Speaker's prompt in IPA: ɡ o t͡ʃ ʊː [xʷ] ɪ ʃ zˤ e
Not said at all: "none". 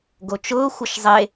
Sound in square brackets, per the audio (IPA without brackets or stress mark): xʷ